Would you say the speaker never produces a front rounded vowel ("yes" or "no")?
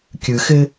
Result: yes